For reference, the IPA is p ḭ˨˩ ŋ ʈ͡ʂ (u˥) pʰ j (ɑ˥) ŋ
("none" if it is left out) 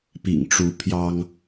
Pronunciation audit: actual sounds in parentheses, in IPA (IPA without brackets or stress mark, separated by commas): u˧˥, ɑ˥